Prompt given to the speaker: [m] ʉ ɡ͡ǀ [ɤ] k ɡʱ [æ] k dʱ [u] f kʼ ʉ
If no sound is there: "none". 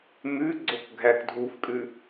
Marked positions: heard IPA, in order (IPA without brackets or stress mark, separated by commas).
m, o, æ, u